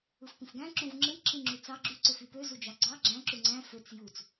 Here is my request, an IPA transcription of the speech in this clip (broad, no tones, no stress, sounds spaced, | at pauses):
ɯ f p ĩ f ɡ æ̃ ǁ ũ v ŋ͡ǁ ɯ j ǁ ĩ ŋ͡ǁ y t͡s ɑ ɡ͡ǁ y ǀ ø f y p ø z u d͡ʒ ɑ ɡ͡ǀ ɑ ɡ͡ǁ æ̃ ǁ u ŋ͡ǀ æ̃ f ø t͡s j u t͡s